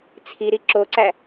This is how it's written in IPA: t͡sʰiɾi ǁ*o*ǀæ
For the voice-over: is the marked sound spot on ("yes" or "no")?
yes